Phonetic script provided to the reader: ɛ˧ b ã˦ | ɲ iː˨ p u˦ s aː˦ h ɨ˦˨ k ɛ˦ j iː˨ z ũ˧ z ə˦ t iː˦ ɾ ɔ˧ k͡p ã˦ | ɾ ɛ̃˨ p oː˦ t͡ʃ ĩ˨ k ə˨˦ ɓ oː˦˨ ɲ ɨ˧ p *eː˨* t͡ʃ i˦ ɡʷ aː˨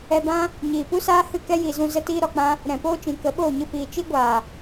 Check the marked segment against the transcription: incorrect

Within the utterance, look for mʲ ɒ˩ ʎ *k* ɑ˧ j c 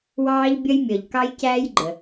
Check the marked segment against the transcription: correct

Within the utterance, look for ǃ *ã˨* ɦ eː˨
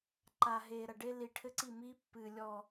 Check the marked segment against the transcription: incorrect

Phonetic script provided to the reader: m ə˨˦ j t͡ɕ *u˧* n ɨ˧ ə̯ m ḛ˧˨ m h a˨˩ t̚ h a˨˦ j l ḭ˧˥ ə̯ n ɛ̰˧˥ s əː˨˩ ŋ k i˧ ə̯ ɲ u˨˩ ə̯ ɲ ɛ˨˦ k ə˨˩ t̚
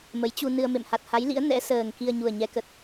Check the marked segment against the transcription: correct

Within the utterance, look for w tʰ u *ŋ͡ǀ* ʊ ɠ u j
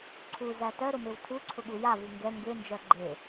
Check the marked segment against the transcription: incorrect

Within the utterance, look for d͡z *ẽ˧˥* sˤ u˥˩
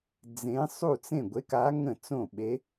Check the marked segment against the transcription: correct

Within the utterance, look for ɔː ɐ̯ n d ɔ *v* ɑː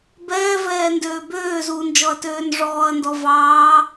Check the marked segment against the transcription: correct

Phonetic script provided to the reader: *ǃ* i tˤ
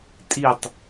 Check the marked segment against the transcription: incorrect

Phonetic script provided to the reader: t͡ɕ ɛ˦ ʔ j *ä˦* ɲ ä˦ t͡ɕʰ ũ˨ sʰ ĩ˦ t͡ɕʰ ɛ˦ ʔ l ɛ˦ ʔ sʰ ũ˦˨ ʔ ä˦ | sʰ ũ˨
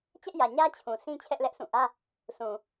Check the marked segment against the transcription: incorrect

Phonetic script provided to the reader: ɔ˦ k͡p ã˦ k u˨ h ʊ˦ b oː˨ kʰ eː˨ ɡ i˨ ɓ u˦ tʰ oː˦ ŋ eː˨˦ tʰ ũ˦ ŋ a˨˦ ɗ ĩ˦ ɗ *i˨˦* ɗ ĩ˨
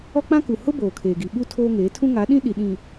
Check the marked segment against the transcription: incorrect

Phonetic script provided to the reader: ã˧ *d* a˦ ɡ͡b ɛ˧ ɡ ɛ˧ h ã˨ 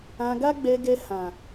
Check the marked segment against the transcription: incorrect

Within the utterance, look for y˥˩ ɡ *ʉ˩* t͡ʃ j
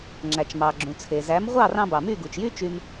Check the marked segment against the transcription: incorrect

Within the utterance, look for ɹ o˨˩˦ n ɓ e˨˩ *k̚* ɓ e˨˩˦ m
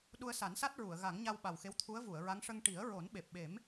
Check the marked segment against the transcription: incorrect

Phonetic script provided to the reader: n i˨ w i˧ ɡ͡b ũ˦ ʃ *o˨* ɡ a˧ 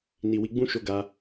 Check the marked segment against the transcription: incorrect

